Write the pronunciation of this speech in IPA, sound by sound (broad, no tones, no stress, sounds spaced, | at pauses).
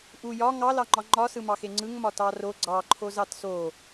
ʔ u j ɒ ŋ ɑ l ɑ ŋ͡ǃ ɒ ŋ͡ǃ ɒ s ɯ m ɑ x e ŋ͡ǀ ɯ ŋ m ɒ t ɑ r o ɡ͡ǀ ɑ ǃʰ o z ɑ t s o